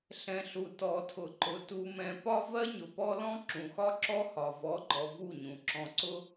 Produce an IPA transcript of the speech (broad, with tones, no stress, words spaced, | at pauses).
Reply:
ɬɛ̃˨ɬu˨ tɔ˨tʰʊ˨ǃʊ˨ tu˨mɛ̃˨ pɒ˦vɜ˦ ɲʊ˨pɔ˦lɔ̃˦ ǁũ˨xɒ˦ǁɔ˦hɒ˨ vɔ˨˦ɡ͡ǃɔ˨ vu˦˨ɲũ˨ ǁɔ̃˨ǀʊ˦